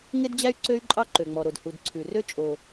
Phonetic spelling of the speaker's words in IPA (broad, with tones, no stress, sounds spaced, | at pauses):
ŋ e˥ d d͡ʑ æ˥ y̯ ǀ ø˥ y̯ ǃʼ ɑ˥ ǃ ø˩ ŋ͡m ɔ˩ ɾ o˩ d h u˩ d ǀʰ ʉ˩ r ø˥ t͡ʃʼ o˩